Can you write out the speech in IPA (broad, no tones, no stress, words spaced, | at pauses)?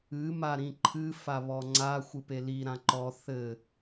ɨ maɾĩǃʰɨ faβɔŋ͡ǀa xʷɨpeli ɾãǃɔ θɘ